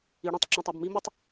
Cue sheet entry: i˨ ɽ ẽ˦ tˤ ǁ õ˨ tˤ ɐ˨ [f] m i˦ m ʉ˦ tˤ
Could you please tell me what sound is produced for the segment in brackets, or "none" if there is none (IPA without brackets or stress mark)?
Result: b